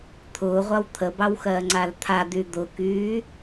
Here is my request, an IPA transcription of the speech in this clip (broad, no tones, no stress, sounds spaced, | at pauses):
t̪ʰ ʊː ʁʷ a w t̪ʰ ə b ɑ w x ɜː ŋ͡ǀ a l t̪ʰ a d̪ y d̪ ʊ k yː